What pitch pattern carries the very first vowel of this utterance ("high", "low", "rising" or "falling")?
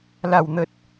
falling